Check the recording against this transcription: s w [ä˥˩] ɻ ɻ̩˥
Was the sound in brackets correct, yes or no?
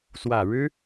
no